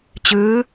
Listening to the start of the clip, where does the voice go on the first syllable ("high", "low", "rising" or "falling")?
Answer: rising